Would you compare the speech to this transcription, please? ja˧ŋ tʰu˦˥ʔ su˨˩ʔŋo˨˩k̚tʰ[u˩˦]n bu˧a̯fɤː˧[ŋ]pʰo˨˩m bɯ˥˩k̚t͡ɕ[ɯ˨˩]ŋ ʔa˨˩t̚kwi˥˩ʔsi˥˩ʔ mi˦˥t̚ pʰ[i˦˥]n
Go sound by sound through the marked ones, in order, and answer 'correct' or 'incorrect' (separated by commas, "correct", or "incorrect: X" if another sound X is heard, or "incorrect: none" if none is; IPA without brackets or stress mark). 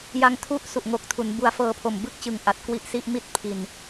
correct, incorrect: none, correct, incorrect: i˧